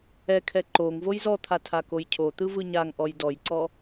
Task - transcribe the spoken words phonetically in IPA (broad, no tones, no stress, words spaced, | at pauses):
ɛkʰɛ ǃoŋ vojzɔt̪ʰa tʰakojcʰot̪ɯ vɯɲaŋʔɔj dɔjǀɔ